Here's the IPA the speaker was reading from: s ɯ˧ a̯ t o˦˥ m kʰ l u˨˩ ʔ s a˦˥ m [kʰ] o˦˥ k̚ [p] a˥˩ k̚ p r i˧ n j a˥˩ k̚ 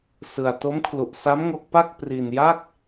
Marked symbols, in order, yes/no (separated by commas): no, yes